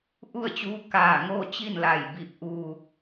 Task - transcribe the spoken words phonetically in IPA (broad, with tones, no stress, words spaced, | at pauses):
ʔu˥˨ə̯t͡ɕuː˧˥ kaː˧˩ ŋoː˥˨t͡ɕi˥˨nla˧˩j bi˧˩p̚ʔuː˧˩k̚